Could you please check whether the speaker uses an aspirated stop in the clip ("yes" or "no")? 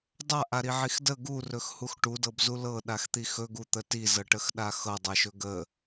no